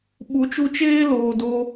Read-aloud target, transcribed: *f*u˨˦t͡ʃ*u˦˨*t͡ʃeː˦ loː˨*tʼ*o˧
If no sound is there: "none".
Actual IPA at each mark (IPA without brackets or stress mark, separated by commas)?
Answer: ɓ, u˧, d